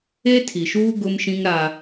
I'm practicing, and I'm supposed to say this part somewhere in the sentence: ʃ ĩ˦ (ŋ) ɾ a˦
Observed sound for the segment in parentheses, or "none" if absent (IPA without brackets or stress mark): ŋ